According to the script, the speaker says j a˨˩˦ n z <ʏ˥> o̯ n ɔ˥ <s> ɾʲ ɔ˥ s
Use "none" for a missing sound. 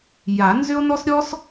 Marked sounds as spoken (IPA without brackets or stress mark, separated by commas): ʏ˥, s